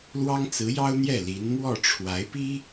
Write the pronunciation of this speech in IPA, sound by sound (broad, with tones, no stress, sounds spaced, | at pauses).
l w ɑ˥ ŋ t͡s ɹ̩˧˥ j ɑ˥ ʊ̯ n̪ j ɛ˥˩ l i˧˥ n m w ɔ˥˩ ʈ͡ʂʰ w a˧˥ ɪ̯ p i˥